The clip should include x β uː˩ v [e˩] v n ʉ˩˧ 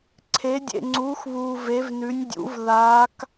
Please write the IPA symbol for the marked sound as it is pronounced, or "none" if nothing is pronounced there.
e˩˧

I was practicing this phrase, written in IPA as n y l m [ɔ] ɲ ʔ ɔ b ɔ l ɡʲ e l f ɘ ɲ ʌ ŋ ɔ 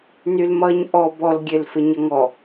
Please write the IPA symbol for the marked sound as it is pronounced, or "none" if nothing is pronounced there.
ʌ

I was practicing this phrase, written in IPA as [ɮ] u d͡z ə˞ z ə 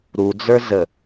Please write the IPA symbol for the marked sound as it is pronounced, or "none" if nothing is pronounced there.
ɾ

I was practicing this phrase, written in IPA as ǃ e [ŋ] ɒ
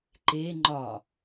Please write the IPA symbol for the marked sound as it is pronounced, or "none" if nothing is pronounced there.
ŋ͡ǃ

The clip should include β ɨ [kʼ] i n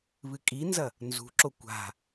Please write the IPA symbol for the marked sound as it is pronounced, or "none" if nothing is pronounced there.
kʼ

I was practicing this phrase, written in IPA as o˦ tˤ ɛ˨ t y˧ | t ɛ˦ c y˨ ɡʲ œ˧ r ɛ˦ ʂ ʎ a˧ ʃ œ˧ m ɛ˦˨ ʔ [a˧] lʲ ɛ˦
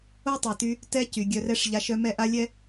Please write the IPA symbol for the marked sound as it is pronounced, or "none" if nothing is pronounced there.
a˦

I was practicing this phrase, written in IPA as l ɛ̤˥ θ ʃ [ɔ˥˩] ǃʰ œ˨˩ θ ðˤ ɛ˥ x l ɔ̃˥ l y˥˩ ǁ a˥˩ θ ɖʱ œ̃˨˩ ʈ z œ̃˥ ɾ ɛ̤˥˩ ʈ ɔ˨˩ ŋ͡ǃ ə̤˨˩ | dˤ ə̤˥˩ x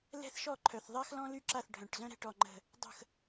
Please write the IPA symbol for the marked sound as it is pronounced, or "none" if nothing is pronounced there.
ɔ˥˩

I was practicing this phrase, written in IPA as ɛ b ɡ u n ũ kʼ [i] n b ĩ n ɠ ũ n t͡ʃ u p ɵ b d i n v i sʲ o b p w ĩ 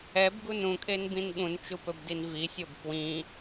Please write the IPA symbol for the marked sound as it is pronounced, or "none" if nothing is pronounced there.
e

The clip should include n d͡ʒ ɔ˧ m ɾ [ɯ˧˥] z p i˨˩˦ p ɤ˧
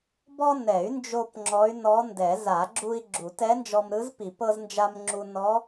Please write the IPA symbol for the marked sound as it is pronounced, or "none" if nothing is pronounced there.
ɯ˧˥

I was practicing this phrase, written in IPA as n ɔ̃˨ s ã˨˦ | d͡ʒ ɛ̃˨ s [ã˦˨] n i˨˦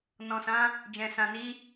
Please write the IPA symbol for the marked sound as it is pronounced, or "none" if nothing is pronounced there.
ã˨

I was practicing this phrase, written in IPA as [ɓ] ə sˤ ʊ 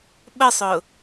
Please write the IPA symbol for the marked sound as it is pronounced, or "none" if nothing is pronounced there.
ɓ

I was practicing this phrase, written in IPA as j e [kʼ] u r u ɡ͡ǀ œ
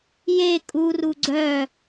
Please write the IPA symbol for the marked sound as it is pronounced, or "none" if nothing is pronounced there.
kʼ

